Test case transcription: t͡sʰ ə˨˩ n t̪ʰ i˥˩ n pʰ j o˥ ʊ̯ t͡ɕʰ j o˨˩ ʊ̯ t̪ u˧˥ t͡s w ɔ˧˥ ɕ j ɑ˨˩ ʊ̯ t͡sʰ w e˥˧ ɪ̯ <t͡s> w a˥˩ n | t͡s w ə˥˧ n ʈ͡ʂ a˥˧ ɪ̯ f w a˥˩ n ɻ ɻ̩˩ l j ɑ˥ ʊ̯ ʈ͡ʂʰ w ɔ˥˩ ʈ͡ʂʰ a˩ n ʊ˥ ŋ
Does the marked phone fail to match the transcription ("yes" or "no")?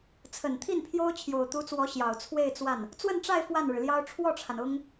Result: no